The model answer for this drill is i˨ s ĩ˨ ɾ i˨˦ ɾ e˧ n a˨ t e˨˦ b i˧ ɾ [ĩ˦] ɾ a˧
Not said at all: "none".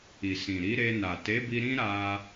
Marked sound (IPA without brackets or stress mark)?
ĩ˦